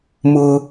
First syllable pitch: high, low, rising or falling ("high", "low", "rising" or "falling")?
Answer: high